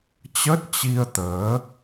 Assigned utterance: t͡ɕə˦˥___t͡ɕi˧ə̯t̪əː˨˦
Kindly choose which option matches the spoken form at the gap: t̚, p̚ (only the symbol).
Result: t̚